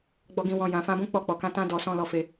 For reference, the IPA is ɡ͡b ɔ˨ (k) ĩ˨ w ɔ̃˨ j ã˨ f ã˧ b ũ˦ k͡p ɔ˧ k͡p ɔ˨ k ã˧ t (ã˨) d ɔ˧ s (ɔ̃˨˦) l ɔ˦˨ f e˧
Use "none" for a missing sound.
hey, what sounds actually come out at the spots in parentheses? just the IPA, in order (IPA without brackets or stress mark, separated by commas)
ɡ, ã˧, ɔ̃˦